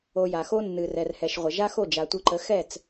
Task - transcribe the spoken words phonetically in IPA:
o˧ ja˩xo˥ nːɨ˩ rɛ˩rhɛ˩ʃʁʷə˩ ʒa˥xo˥˩ d͡ʒa˩tʷɨ˧ǃə˩˥ xɛ˥˩t͡s

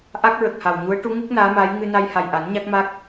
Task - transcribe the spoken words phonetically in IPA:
ʔa˦˥k̚ɹə˨˩k̚ha˨˩wɲu˧˥ə̯ ʈu˧˥ŋu˦˥k̚ naː˧˥maː˧˥j ŋɨ˧na˧j ha˨˩jʔa˨˩˦n ɲa˦˥k̚ma˦˥k̚

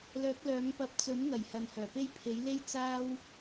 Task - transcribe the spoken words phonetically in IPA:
lœː˨˥k̚lœː˨˥ŋpɐ˧p̚ t͡sɵ˨˥nŋɐ˨˩j hɐ˨nhœː˨˩pe˥j pʰe˨˥jle˥j t͡saː˥w

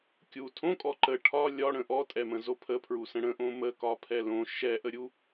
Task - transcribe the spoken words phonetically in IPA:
kʲu tʰõkʼɔ ǃə ʈʰɒ lʲɒɽə̃ ʔɔtʼɛmə̃zo pʰəpʰɹusə̃ ɽə̃ʔõ məkɒpʰɛ lõ ʃɛʔəɾʲu

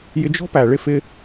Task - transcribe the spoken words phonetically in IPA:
jɪ˧d͡ʒɔ̤˦ pæ˨ɭɪ˦ fɪ˦

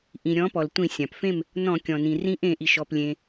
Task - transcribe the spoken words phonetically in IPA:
ʔĩ˩ ɾʲɔ̃˨˥pɔ˩ltʷĩ˧˩˧ sʲã˩pfẽ˥˨m | nɔ̃˧˩˧kʲɔ̃˩nĩ˩ rĩ˨˥ʔẽ˧˩˧ʔi˩ʃ ɔ˩plʲẽ˩

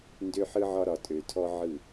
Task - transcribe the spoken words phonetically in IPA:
ndø˦ħɯ˦ʕɒ˦ ɾɒ˨tʼø˨tʰɔ˦ ʕɯ˦˨

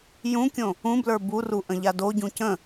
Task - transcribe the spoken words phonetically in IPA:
jũkʲõ | ũblə˞ buru ʔə̃ʎadoɟũ cə̃

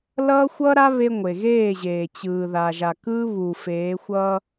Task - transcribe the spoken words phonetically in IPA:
lʌː˦xʷʌː˦ɾa˦ βe˦ ŋʷe˨ɣeː˦˨ʑeː˨ t͡ɕɯː˨ ða˨ʒa˨kɯː˦ βuː˨feː˨˦xʷʌː˦

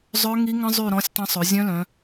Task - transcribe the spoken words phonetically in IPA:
zˤœ˦˥ŋi˦˥ŋə̃˦˥zˤy˦˨ ɾɔ̃˦˥sʲtˤə̃˦˥ sˤø˩˧ zʲœ̃˦˥lœ̃˩˧

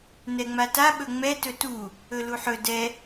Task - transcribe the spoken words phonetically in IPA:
nɛŋ͡mata ɓɵŋ͡mɛ tɵtu | ɵluħɵ dɛ

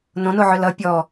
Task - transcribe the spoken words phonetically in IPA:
nõnoʕʏ lʌ pʲɔ

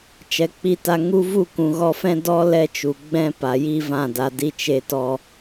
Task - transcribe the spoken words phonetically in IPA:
t͡ʃɛ˨k͡pi˧ta˧ ŋu˧vu˦˨ kũ˨ɣɔ˧fɛ̃˦ dɔ˦ lɛ˦t͡ʃu˨ ɡ͡bɛ̃˦pa˨ ji˦vã˦˨da˧ di˧t͡ʃe˧tɔ˧

